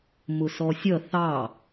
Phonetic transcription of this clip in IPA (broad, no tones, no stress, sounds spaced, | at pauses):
m ʊ s ɔ sʲ ʌ θ ɑ